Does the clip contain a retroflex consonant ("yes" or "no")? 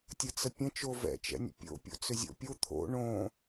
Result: yes